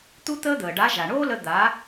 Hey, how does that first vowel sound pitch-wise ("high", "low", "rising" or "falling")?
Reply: high